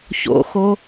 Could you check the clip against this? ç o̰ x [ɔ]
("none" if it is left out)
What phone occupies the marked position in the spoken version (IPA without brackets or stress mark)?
o